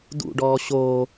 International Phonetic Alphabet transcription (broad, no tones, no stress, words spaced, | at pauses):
dṵɖɔː ɕo